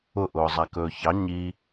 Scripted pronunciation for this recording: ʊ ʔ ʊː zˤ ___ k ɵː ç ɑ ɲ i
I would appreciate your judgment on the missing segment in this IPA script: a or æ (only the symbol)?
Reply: a